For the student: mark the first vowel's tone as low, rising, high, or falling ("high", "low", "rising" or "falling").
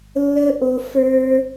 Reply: high